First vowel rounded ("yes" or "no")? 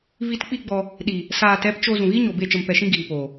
no